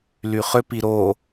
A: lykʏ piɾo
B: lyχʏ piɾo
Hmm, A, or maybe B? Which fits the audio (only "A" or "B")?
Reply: B